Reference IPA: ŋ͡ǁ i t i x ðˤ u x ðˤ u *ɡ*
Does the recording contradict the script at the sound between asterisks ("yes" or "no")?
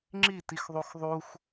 yes